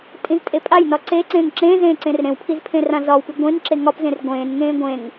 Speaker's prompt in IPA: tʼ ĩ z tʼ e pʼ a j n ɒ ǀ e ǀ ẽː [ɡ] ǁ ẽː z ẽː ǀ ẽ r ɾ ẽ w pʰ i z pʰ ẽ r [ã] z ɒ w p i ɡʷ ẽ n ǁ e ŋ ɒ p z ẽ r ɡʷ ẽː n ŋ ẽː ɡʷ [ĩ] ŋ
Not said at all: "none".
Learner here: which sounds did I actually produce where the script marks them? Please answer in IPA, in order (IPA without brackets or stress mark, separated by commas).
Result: ŋ, ã, ẽ